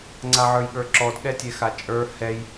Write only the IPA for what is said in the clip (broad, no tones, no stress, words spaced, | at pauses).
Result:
ŋ͡ǀaʕə˞jɠə˞ǁɔd ɠɛtʲɛxat͡ʃʼə˞ hɛj